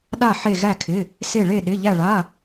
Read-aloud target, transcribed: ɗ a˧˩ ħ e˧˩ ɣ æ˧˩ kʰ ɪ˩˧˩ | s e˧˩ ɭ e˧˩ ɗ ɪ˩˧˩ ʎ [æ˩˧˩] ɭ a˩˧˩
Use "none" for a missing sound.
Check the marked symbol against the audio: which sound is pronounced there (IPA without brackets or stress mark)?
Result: æ˧˩